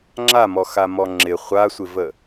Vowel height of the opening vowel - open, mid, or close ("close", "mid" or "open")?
open